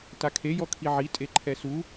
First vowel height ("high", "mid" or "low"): low